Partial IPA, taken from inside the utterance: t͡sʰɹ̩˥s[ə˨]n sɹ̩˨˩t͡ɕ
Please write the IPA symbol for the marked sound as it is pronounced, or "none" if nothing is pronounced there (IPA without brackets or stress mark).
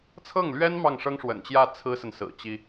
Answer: ə˨